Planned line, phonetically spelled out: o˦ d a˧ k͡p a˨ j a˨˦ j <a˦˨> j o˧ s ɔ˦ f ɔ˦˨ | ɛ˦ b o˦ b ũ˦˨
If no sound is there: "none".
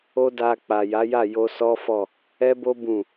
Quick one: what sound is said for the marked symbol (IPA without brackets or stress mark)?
a˦˨